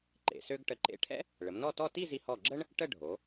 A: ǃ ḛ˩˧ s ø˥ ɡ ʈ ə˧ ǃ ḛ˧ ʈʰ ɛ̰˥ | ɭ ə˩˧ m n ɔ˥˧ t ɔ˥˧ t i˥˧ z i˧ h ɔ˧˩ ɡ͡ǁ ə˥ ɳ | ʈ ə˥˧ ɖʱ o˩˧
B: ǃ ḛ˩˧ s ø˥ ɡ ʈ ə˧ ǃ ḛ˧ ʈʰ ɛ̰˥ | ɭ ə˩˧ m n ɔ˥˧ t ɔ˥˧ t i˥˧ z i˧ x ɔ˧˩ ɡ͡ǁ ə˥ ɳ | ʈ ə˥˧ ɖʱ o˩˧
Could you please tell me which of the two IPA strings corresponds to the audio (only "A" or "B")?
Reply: A